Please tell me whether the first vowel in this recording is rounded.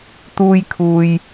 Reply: yes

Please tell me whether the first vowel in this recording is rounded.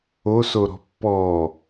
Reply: yes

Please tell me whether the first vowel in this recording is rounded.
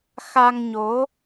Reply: no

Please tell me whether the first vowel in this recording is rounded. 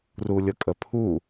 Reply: yes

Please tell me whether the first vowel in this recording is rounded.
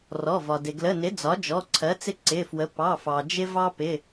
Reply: yes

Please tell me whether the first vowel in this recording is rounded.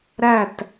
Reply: no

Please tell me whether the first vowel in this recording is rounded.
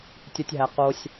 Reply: no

